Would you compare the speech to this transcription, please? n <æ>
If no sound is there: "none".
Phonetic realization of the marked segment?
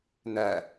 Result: æ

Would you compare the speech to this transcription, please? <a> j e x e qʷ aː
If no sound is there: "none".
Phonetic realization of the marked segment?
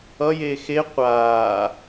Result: ʌ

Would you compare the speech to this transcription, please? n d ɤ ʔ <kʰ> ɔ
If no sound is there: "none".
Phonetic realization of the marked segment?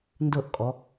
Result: kʼ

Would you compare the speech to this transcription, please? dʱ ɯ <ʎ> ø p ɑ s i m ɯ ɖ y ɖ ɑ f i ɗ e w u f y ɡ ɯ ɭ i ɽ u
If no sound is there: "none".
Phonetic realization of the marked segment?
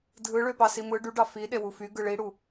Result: ɭ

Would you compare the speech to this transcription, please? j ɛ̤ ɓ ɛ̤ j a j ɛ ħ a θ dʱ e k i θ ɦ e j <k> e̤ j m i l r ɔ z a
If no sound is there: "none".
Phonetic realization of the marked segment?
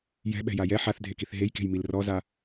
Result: k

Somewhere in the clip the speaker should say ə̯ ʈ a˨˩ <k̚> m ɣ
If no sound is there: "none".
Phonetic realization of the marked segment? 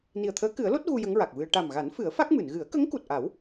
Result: none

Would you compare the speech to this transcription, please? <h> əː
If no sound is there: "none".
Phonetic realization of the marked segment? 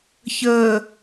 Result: ç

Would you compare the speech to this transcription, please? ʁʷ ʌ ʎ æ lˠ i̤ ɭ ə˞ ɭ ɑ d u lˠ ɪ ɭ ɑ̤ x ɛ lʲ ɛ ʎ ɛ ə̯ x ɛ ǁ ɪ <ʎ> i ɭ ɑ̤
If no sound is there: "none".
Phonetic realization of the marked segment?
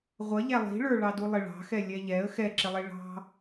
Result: lˠ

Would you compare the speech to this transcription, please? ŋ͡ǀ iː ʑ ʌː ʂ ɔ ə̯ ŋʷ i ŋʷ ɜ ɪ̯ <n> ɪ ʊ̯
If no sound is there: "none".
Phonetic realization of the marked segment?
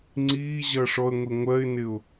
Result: n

